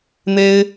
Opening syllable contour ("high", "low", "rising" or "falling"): high